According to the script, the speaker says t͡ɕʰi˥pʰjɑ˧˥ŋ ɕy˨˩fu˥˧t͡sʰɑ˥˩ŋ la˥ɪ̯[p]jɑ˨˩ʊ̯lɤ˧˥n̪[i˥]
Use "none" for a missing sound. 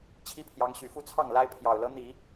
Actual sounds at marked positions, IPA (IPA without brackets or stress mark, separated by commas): pʰ, i˨˩˦